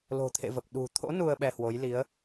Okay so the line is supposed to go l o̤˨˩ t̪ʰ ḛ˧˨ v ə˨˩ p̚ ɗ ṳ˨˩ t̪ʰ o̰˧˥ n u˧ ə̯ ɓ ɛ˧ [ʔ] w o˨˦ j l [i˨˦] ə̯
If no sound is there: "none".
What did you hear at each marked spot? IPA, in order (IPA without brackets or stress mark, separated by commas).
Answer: h, i˨˦